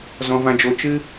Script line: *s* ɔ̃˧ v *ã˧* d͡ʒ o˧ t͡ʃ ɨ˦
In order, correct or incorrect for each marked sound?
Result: incorrect: z, correct

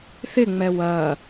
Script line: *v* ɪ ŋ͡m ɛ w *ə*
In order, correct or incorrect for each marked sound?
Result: incorrect: θ, incorrect: ɐ

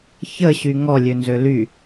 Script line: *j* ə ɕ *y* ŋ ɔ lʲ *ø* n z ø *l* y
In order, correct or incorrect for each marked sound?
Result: incorrect: ç, correct, correct, correct

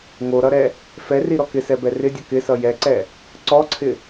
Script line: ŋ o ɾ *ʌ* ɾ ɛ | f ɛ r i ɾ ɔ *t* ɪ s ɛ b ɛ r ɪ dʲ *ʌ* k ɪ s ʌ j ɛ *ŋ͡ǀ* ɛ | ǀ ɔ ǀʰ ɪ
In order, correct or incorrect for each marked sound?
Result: correct, incorrect: k, correct, incorrect: ǀ

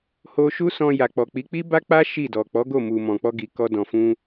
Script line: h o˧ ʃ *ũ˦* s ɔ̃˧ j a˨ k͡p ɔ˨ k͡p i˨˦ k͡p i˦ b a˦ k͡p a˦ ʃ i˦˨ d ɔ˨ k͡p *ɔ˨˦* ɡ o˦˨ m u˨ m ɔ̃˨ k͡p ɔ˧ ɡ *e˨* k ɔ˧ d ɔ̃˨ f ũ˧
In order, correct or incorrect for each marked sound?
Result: incorrect: u˦, correct, incorrect: i˨

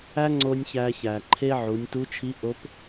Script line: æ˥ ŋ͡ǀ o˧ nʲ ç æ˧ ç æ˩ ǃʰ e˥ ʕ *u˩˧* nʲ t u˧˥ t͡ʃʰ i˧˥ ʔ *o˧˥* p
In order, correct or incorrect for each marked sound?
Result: correct, correct

